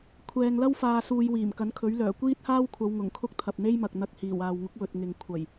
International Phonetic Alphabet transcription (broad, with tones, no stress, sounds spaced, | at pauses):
kʷʰ ɛː˨ ŋ l ɐ˥ w f aː˨ s uː˨ j w iː˨˩ m k ɐ˨˥ n kʰ ɵ˨˥ ɥ l œː˨˩ kʷ iː˥ t̚ h aː˥ w kʷʰ ɐ˨˧ w ŋ ʊ˨˩ ŋ kʰ ʊ˥ k̚ t̪ʰ ɐ˨ p̚ n̪ e˥ j m ɐ˨ k̚ n̪ ɐ˧ k̚ h iː˨˩ w aː˨ w ŋ ʊ˨˥ k̚ w ɵ˨ t̚ ŋ ɪ˨ ŋ kʷʰ ɐ˨˩ j